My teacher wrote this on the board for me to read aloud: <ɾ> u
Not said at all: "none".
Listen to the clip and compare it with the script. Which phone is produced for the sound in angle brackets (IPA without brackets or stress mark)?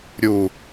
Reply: ɾʲ